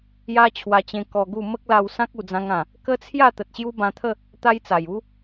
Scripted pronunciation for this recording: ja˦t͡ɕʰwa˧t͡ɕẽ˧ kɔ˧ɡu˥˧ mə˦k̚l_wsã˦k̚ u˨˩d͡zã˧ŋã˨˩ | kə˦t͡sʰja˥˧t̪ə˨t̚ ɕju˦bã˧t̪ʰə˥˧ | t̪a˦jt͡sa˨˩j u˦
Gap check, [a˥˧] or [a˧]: a˧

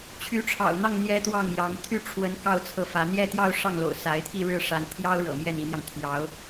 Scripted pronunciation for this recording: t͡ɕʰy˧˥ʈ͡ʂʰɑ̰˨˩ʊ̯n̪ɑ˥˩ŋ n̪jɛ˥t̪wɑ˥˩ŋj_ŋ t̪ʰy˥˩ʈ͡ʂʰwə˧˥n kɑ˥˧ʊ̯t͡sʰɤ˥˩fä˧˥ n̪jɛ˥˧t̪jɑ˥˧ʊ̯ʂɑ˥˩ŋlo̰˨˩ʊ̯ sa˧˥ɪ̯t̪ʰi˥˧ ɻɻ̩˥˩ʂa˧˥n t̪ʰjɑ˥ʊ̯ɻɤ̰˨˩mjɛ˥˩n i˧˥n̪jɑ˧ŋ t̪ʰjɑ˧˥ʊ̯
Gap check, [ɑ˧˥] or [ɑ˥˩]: ɑ˧˥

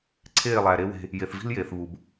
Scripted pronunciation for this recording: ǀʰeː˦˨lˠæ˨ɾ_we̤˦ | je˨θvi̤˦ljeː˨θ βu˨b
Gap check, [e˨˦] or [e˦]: e˦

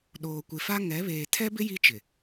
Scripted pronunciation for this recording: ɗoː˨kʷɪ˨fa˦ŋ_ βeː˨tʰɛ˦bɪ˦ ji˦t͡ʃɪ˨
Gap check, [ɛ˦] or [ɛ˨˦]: ɛ˨˦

